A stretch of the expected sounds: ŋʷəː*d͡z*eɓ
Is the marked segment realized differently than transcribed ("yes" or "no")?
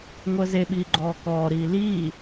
yes